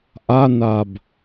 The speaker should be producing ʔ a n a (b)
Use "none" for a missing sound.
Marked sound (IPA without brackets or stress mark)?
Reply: b